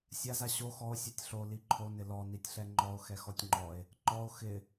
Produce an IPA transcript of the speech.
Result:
sʲ a z a ɕ o x ɔ o̯ sʲ o tʲ ɬ o l i ǃʰ o n ɪ l ɔ n i tʲ ɬ ɛ ŋ͡ǃ ɔ o̯ x ɛ x ɔ tʲ ŋ͡ǃ ɔ e̯ | ǃ ɔ o̯ x ɪ

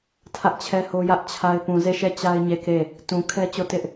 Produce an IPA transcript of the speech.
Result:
tʰ ä˦ ʔ t͡ɕʰ ɛ˦ h o˦ j ä˦ ʔ t͡ɕʰ a˦ ɪ̯ p ũ˨ z e˦˨ ʃ ɛ˦˨ t͡ɕ a˦ ɪ̯ ɲ e˦˨ k e˦˨ | t ũ˨ kʰ ɛ˦ t͡ɕ o˦˨ t ɪ˦ ʔ

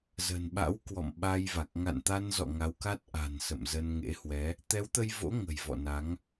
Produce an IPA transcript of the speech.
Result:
z ə̤˨˩ n ɓ a̰˧˥ w k w ɔ̰˧˨ m ɓ a˧ j v a˨˩ k̚ ŋ a̰˧˨ n t̪ a˧ n z ɔ̰˧˨ ŋ a˨˦ w k a˦˥ t̚ ʔ a̤˨˩ n s ə̰˧˨ m z ə˧ n ŋ ḛ˧˥ h w ɛ˨˦ | t̪ ɛ˨˦ w t̪ ə˧ j v o̰˧˥ ŋ ə̤˨˩ j v ɔ̰˧˨ n a˨˦ ŋ

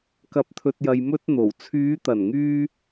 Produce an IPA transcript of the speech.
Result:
k ɐ˨˥ p̚ t̪ʰ ɵ˨ t̚ j ɐ˨ j m ɵ˧ t̚ n̪ o˨˩ w t͡sʰ yː˨˧ t̪ ɐ˨˩ n ŋ yː˧

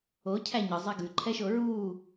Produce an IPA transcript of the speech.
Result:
o cʰ æ ɲ ɯ zˤ ɛ ɡ ʉ ǃʰ ɛ ʃ o ɹ uː

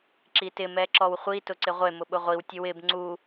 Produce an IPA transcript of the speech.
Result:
ǁ i t ɪ m ɛ ǁ ɔ w χʷ i t ʊ ǀ ɪ ʁʷ e m ʊ ɓ ʊ ʁʷ i w tʲ ʊ w ɪ b ŋ͡ǀ u

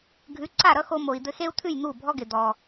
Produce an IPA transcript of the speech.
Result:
ɡʱ ʉ˩˥ ǀ a˥˩ ɾ ʌ˥ x o˧ m o˩ i̯ d̪ ɘ˧ x e˥ u̯ t̪ʰ ʉ˥˩ j n̪ u˥˩ bʱ ɔ˥ ɡ ɪ˩ d̪ ɔ˩

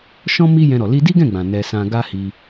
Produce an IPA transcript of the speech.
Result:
ʃ ɔ̃˦ m i˦ j ɛ̃˧ ɾ ɔ˨ l i˧ d i˦ ɡ ɛ̃˦˨ ɡ͡b ã˨ n ɛ˧ s ã˧ ɡ a˦ h i˧

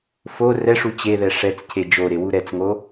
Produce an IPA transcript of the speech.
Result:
f o r ɛ ʂ u t͡ɕ e ð ɛ ʂ ɛ t͡s cʰ e d͡ʒ o ɾ e w u ɾ ɛ t͡s ŋ o

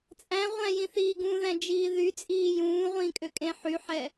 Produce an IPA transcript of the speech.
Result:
t͡sʼ æ̃ ʁʷ æ̃ j ĩ θ iː ɡ ũ ð æ̃ d͡ʒ iː ð y t͡sʼ iː j ũː ʁʷ ĩː kʼ ø kʼ ẽ ħ y ħ ɛ

